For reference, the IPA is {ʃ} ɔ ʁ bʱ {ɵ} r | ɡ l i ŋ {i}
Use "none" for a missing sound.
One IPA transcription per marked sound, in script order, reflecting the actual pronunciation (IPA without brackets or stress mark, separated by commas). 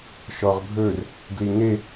ʃ, ɵ, e